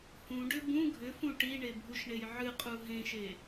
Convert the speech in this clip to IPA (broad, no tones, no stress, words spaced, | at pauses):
hũɖʏ bũ ɡʱʏfũ ʈiɳe bʱuʃɳejʕɨqʼu ɦẽʃe